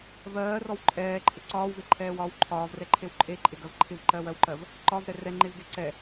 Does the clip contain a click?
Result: yes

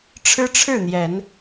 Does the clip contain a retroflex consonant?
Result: yes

